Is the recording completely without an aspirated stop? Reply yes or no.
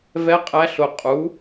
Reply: yes